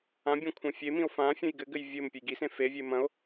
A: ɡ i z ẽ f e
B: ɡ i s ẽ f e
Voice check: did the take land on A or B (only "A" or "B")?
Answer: B